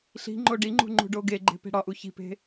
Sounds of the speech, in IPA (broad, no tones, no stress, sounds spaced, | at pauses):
ɬ i̤ ŋ͡ǃ o ɖ i ŋ͡ǃ ṳ ŋ͡ǃ ṳ ɖ o ɡ e ɡ͡ǃ e̤ p e̤ ɽ ɒ ʔ u ç i̤ p e̤